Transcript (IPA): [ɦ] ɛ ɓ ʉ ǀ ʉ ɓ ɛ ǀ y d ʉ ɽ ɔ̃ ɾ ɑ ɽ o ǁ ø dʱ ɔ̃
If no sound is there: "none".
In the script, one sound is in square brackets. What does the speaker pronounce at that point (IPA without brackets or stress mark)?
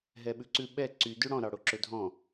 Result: ɦ